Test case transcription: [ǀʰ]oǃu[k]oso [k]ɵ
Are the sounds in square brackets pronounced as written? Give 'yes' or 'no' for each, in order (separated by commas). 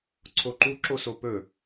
yes, no, no